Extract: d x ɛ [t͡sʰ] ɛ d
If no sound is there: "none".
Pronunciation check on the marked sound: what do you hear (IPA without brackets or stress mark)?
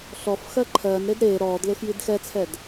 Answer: t͡sʰ